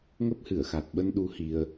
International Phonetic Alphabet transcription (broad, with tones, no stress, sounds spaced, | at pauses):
ŋ ə˦˥ p̚ h ɨ˧˩ ə̯ x a˨˩ t̚ ɓ ə˧ n ɗ u˨˦ h i˧ ə̯